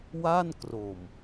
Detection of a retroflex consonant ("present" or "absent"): absent